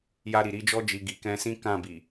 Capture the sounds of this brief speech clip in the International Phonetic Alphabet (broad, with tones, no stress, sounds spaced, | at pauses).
j a˧ ɾ i˨ ɾ i˨˦ d͡ʒ ɔ˧ d͡ʒ i˨ ɡ i˨ k ɛ̃˧ s ĩ˦ k ã˦˨ b i˨